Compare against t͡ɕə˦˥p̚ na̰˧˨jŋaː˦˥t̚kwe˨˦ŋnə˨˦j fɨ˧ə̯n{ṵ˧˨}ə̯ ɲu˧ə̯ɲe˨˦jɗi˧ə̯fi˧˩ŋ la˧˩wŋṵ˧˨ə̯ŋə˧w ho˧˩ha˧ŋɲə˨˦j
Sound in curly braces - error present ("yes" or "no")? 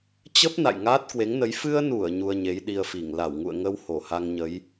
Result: yes